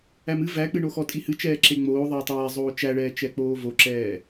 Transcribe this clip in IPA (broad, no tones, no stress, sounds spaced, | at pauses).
æ m ɨ v æ k͡p ɨ ɳ o x ɔ tʼ i h ɨ t͡ʃ ɛː ǁ e ŋ͡m oː ðˤ ɛː tˤ ɛː zˤ oː t͡ʃ æ ɭ ɛː t͡ʃ ɛ k͡p oː v o ǁ ɛː